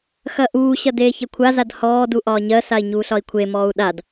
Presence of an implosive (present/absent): present